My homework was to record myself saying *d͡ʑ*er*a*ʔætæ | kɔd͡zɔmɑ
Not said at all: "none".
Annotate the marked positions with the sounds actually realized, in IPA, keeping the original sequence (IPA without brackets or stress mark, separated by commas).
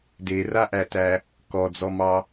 d, a